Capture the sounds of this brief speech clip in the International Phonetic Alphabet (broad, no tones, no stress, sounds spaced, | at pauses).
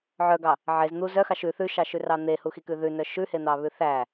ʕ œ ɡ ɑ | ʕ e z n̪ u z œ x ɑ ʃ ʉ θ ʉ ʃ ɑ ʃ ʉ r ɑ n̪ e h u x i k ʉ ð ʉ n œ ʃ ʉ h e n̪ ɑ β ʉ θ æ